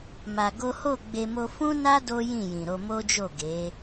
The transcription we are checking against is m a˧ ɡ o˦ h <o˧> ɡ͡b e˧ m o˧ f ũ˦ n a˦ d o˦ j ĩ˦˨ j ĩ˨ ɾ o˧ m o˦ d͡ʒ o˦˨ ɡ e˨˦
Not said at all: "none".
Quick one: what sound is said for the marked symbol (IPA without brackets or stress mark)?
o˦˨